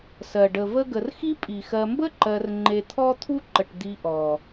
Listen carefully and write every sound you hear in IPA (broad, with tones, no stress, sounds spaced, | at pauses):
s ɜ˩ ɖ ə˩ v ə˦ ɡ ə˨ r x i˥ pʼ i˩ x ɜ˨ m b ə˥ ǃ ɜ˨ r ŋ͡ǃ e˨ t̪ʰ ɔ˥ t̪ʰ u˥ ǃ ə˩ ʈ d̪ i˨ ʔ ɔ˩